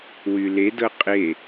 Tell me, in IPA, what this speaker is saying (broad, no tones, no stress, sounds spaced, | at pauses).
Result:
w y l e d ɤ qʼ e